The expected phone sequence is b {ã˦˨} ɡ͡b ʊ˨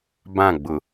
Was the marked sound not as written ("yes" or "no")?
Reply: no